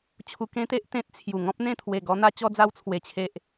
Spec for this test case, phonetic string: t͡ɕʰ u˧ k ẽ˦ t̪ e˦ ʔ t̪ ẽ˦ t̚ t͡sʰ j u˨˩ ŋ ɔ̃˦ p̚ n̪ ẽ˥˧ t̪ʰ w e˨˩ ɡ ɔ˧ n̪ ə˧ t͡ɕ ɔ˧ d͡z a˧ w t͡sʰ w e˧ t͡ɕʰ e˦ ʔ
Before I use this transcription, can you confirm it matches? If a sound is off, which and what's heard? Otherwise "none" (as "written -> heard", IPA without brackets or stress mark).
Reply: ə˧ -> a˧